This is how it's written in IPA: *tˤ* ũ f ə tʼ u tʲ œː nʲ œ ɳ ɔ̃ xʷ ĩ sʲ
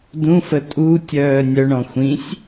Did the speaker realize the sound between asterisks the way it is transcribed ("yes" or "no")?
no